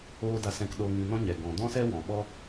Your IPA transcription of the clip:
oː˧ d a˧ s ɛ̃˧ k ɗ oː˧ ŋ ĩ˧ n ɔ̃˦ ɲ ɛ˨ ɡ ɔ̃˨ d ɔ̃˦ s ɛ˦ w ɔ̃˨ ɓ ɔ˦

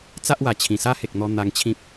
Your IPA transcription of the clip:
t͡s a˦ ʔ w a˨˩ t͡ɕʰ ĩ˨˩ s a˦ h e˨ k̚ n̪ ɔ˧ n̪ a˧ ŋ t͡ɕʰ ĩ˦ p̚

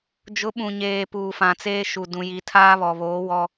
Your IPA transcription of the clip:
d͡ʒ ʊ˨˦ ɓ ũ˨ ɲ eː˨ p uː˨ f ã˨ t͡s eː˦ ʃ u˨ d ũ˨ j i˨ tʰ aː˦ β ɔ˨ β oː˨˦ w ɔ˦

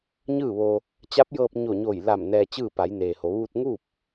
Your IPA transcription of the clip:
ɲ ɯː˥˨ ʋ o˧ | t͡ɕ a˧˥ p̚ j ɤː˧ p̚ ɲ o˧˩ ɲ o˧˩ j l a˧˩ m n ɛː˧ t͡ɕ ɯː˥˨ p a˩˧ j n eː˩ h o˩˧ ʋ u˧ t̚ ŋ u˥˨ p̚

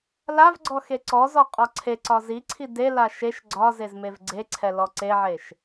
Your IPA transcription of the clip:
l a v ɡ͡ǀ ɔ x e ǀ ɔ z ɔ qʼ ɒ ǀʰ e ǀ ɒ z i ǀʰ i d e l a ʃ e ʃ ɡ͡ǀ ɒ z e z m e v ɡ͡ǀ e ǀʰ ɛ l ɔ ǀ e ʕ e ʃ

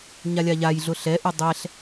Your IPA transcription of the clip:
ɲ a lʲ a ʎ a j ɮ ʊ ɬ ɛ ʔ u dˤ ɛ ɬ

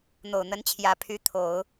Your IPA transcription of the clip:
n̪ o˨˩ ʊ̯ n̪ ə˧˥ n t͡ɕʰ j ä˨˩ pʰ y˧˥ t̪ʰ o˨˩˦ ʊ̯

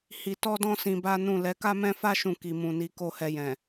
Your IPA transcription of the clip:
h i˧ t ɔ˦ d ɔ̃˦ s ĩ˧ b a˦ n ũ˦˨ l ɛ˨˦ k a˦ m ɛ̃˦ f a˦ ʃ ũ˦˨ k i˨ m ũ˨ n i˨˦ k o˦˨ h ɛ˧ j ɛ̃˨

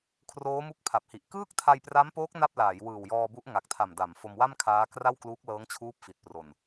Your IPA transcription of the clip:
kʰ r oː˦˥ m u˦˥ k̚ pʰ a˨˩ p̚ h i˨˩ ʔ k ɯː˥˩ k̚ tʰ a˧ j p r a˦˥ m p oː˦˥ k̚ n a˥˩ p̚ l aː˩˦ j w ɯː˨˩ w j ɔː˧ b u˦˥ ʔ ŋ a˨˩ k̚ tʰ a˨˩ m d a˩˦ m f o˧ m w a˥˩ m kʰ aː˦˥ k r a˥˩ w k l uː˦˥ k̚ l ɤː˦˥ ŋ t͡ɕʰ uː˦˥ p̚ f i˨˩ t̚ p r o˨˩ n

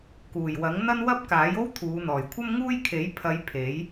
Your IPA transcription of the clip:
k uː˨˩ j w ɐ˨˥ ŋ n̪ ɐ˥ n w ɐ˥ p̚ k aː˨˥ j o˥ w t̪ʰ uː˨˧ n̪ ɔː˨˩ j kʷʰ ɐ˥ m ŋ uː˥ j kʰ e˨˥ j pʰ ɐ˨˧ j pʰ e˨˥ j

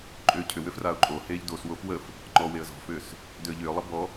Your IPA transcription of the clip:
ǃʼ ʏː cʰ ʏ w ʏ f r a ʊ̯ ǃʼ o h eː ʎ d o s w o f w ə f | ŋ͡ǃ ɔ w e ə̯ z ɔ̤ f ʏː s | d ʏ ə̯ ʎ ʏː lˠ ə b ɔ

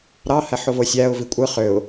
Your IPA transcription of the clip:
ɾ ɑ h æ ħ o v o sʲ æ ʊ̯ v i kʷʼ ɯ χ ø ʊ̯

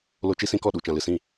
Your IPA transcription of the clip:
l o˧ t͡ʃ i˦ s ĩ˧ k ɔ˦˨ ɗ u˨ t͡ʃ ã˨ l ɨ˨ s ĩ˦˨

